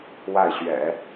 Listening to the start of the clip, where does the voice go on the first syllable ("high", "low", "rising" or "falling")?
falling